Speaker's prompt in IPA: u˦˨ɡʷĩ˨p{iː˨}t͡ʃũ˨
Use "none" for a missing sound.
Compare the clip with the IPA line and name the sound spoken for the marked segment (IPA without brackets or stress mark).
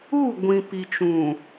i˨